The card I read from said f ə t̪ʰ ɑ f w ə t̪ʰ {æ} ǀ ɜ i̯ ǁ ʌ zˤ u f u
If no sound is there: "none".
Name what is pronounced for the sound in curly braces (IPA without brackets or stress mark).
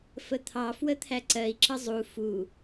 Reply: æ